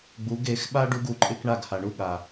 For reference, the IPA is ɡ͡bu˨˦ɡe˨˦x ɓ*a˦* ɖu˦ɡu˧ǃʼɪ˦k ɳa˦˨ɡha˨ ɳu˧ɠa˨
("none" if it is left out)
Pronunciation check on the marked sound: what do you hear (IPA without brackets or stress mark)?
a˦